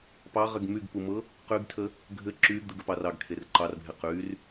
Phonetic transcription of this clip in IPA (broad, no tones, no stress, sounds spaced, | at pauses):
p ɑ ʁ ɘ ɡ m y ɡ p u m ɤ | q y ɡ tʰ ə | ɡʱ ɘ ǁ y ɡ d̪ ɘ ɡ ə p ɑ r ɑ ɡ kʰ e r ǃ ɑ r bʱ e q y r